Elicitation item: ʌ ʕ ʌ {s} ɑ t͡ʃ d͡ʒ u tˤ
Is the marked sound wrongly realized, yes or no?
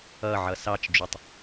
no